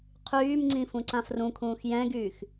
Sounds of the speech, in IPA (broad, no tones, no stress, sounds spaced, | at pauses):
qʰ yː m ŋ͡ǀ ĩ f ũ ǀ ã f r ũ kʰ ũː x j ɛ̃ ɡ yː x